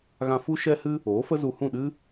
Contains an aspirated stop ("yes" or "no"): no